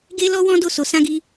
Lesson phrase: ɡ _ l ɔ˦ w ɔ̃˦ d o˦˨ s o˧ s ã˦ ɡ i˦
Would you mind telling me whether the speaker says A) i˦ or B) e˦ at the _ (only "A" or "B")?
B